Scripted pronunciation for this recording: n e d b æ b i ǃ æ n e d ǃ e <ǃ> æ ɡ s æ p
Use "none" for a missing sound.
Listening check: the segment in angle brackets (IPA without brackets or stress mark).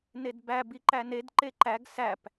ǃ